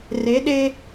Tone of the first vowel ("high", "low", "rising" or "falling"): rising